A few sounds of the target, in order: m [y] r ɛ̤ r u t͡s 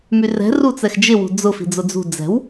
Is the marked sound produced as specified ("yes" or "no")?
yes